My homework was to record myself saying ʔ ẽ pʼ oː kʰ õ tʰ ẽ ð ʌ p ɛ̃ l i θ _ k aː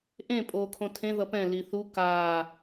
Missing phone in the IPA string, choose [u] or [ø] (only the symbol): u